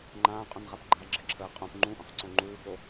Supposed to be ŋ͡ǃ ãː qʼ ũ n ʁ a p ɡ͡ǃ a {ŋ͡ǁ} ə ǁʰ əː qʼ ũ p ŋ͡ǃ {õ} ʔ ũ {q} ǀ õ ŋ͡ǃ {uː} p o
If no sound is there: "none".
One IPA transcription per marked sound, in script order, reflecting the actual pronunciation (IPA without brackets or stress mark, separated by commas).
ɡ͡ǁ, ũ, q, uː